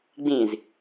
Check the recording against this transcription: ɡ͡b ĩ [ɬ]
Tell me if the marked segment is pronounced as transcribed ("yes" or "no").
no